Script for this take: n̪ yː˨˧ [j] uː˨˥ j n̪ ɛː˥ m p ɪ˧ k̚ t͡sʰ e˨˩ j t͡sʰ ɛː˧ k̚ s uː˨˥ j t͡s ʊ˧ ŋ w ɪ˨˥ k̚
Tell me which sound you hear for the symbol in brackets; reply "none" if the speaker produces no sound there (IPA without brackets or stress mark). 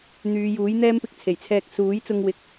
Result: j